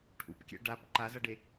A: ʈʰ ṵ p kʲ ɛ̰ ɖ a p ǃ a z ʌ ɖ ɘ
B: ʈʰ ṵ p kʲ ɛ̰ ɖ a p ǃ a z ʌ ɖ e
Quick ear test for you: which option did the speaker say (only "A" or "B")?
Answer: B